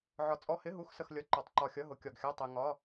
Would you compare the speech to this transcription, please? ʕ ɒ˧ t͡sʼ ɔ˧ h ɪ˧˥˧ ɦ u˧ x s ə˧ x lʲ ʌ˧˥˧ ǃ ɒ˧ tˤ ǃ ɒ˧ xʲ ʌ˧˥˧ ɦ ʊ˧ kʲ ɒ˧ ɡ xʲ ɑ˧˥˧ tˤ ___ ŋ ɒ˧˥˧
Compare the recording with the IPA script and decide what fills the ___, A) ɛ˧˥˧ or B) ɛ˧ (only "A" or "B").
B